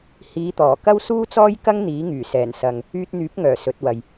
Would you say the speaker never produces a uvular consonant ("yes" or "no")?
yes